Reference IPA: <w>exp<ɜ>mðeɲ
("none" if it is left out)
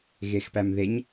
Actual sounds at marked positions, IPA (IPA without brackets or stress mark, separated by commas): ɣ, æ